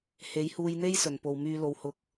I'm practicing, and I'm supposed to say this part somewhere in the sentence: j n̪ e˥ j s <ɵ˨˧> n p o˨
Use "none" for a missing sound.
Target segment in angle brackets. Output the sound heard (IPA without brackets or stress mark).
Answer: ɵ˨˩